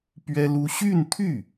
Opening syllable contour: high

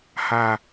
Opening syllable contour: low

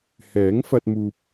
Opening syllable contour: rising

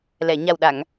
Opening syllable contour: low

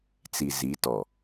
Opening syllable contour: low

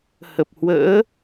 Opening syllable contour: low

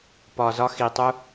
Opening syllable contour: low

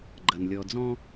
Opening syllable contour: low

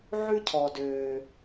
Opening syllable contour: high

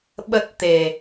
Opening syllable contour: low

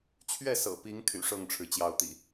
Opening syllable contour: falling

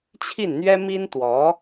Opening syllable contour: falling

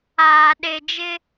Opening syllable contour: low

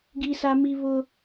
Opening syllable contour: high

